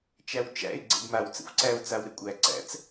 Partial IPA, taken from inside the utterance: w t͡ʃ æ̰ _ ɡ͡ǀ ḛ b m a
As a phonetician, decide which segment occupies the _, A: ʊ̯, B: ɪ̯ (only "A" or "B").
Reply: B